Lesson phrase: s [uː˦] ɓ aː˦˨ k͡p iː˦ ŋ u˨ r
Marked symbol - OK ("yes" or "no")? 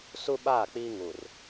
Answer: no